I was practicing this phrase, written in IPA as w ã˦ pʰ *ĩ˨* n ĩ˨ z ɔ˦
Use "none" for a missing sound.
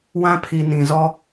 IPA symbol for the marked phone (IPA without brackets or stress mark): i˨